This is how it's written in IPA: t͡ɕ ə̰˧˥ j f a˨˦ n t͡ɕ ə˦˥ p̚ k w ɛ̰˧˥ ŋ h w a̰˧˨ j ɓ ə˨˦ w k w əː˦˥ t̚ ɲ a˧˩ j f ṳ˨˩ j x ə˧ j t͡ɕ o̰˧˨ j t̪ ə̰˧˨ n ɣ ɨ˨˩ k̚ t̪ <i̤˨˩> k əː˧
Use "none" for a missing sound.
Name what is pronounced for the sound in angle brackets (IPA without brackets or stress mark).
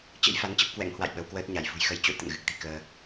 i̤˨˩